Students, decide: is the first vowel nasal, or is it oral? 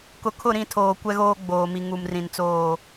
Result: oral